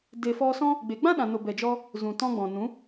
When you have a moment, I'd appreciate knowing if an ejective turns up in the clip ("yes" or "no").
no